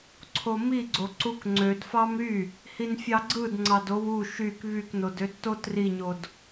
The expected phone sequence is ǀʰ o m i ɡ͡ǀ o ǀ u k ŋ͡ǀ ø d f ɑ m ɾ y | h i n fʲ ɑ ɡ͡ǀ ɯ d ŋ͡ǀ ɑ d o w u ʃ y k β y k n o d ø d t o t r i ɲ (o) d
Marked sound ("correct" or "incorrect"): correct